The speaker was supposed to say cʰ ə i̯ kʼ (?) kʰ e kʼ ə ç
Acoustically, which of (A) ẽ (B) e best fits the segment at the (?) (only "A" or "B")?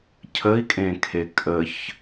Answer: A